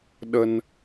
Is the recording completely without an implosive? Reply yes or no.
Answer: no